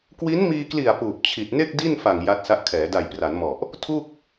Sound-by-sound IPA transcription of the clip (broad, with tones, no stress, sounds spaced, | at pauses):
k w i˦˥ n m iː˧ k l i˨˩ a̯ p uː˨˩ p̚ t͡ɕʰ i˨˩ t̚ n e˥˩ k̚ d i˥˩ n f a˨˩ ŋ j a˦˥ t̚ s a˦˥ ʔ kʰ ɛː˩˦ d a˨˩ j p r a˩˦ n m ɔ˨˩ ʔ | tʰ u˥˩ k̚